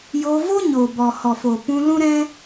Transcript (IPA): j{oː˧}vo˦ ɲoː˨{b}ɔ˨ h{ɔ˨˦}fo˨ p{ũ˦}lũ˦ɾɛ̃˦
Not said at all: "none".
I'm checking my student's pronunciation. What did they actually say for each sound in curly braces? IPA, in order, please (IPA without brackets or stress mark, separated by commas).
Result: oː˧, b, ɔ˨, ũ˧